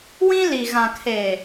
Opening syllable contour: high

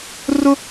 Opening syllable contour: high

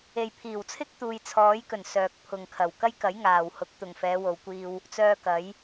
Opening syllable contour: low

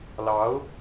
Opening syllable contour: rising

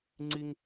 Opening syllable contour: high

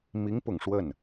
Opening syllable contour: rising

